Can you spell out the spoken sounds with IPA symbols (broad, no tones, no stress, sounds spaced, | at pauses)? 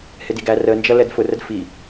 h ɪ d i ɡ æ r ə n d͡ʒ ʌ l ɛ d f ʊ r ə d f i